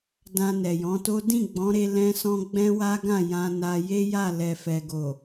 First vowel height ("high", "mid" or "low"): low